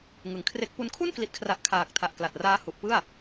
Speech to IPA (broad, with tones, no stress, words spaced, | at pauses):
ŋɯ˨˩ŋkʰre˦˥k̚pu˦˥n kʰu˥˩nkli˨˩t̚kʰra˨˩ʔ kʰaː˨˩k̚tʰa˨˩ʔkla˨˩t̚raː˦˥ hu˨˩ʔpɯ˥˩a̯